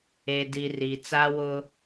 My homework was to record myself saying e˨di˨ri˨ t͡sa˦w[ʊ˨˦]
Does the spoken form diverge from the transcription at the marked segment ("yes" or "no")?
yes